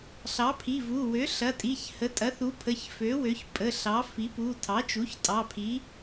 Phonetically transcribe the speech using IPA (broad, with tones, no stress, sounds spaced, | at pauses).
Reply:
ɬ ɑ˩˥ pʰ i˩˧˩ v u˩˧˩ w ø˩˥ ɬ ɐ˩˧˩ tʼ i˩˧˩ ç h ə˩˥ tʼ ɐ˩˥ θ u˩˥ pʰ ə˩˧˩ ç f ø˩˥ w ø˩˥ ç pʼ ə˩˧˩ ɬ ɑ˩˥ f i˩˥ p u˩˧˩ tʰ ɑ˩˥ t͡ʃ u˩˥ ç tʼ ɑ˩˧˩ pʰ i˩˥